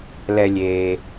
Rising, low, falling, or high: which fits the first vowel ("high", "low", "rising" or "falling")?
low